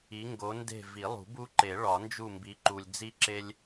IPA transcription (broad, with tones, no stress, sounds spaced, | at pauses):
i˨˦ ŋ ɡ o˨˦ n d e̤˦˨ v i˨˩˦ lˠ ṳ˨˩˦ b u˦ ǃ e˨˩˦ ɭ ɒ˨˩˦ n d͡ʒ u˦˨ m b i˨˦ ǃ u˨ lʲ d͡z i˦ ǁ e˦ lʲ